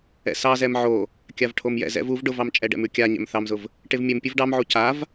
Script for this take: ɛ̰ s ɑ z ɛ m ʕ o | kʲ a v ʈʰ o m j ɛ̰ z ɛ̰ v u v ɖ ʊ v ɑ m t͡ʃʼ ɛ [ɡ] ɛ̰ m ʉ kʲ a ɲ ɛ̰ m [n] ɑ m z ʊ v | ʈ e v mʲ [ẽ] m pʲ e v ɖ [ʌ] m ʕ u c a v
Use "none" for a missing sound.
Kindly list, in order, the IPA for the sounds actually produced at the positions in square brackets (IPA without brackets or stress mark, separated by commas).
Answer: ɖ, θ, e, ɑ